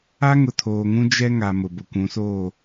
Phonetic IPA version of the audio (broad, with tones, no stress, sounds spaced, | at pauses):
a˦ ŋ ʊ˨ tʰ oː˨ ŋ ũ˦ d͡ʒ ɛ˦ ŋ a˨ m ʊ˨ b ʊ˨ kʷ ũ˨˦ s oː˦˨